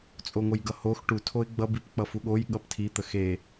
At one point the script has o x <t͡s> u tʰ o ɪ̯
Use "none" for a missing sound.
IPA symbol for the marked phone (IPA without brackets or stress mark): ʈ